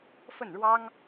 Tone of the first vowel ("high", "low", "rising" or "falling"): falling